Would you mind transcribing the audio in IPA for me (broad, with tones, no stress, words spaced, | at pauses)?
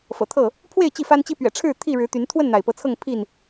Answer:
fɤ̰˨˩t̪ʰɤ˥˨ | pʰwe˥˨ɪ̯ t͡ɕi˥˨fa˦nt͡ɕi˦ pɥɛ̰˨˩ʈ͡ʂʰɻ̩˥˨ t̪ʰi˥˨ɻɻ̩˨˦t̪y˨˦n t̪ʰwə˥˨nn̪a˩ɪ̯ pɤ˨˦t͡sʰɤ˥˨ŋpʰi˥˨n